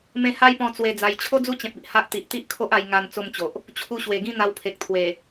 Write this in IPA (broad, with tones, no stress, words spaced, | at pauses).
mẽ˧ha˦jpɔ̃˧ t͡swe˧d͡za˧j t͡ɕʰo˦d͡zu˦t͡ɕẽ˨p̚i˨ʔ ha˦ʔ t̪i˨ʔt̪i˦ʔkʰo˦ʔ a˧j ŋa˧n t͡so˥˧mt͡ɕo˨ʔ | t͡ɕʰu˧ɕwe˨˩ɡĩ˥˧ n̪a˧wpʰe˨k̚ t̪ʰwe˨˩